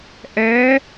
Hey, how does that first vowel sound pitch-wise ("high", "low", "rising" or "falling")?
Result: rising